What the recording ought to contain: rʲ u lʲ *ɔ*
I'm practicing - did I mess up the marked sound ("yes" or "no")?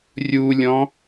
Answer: yes